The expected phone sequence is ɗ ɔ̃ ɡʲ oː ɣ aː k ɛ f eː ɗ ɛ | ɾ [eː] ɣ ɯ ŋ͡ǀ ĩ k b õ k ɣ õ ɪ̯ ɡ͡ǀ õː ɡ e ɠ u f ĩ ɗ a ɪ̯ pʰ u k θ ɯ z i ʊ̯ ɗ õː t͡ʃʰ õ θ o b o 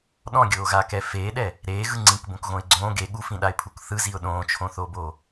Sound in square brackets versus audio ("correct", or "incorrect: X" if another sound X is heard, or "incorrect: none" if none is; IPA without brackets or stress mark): correct